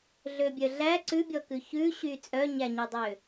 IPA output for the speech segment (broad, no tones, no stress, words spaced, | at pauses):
ɮøbʲœɮæ ǀʉbʲɔkʉ çʉɕy t͡sʼœɲæɲødˤø